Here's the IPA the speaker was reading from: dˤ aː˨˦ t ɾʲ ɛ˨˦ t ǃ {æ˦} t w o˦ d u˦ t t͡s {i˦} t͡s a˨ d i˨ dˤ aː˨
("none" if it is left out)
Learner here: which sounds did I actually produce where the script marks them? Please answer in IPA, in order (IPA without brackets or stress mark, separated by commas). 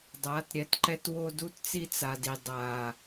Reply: ɛ˦, i˦